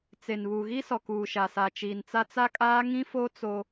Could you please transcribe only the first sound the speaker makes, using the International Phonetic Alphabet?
t͡s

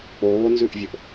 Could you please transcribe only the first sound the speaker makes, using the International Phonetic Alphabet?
k͡p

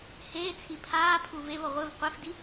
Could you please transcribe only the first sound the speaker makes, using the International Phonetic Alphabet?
h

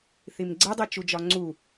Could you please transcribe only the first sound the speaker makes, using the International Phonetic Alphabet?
θ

